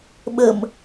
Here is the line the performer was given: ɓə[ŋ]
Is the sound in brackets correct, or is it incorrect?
incorrect